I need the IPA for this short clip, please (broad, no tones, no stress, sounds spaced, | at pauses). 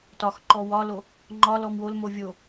t ɒ x ǃ ɔ w ɒ l o | ŋ͡ǃ ɒ l ɔ m w o l m o vʲ o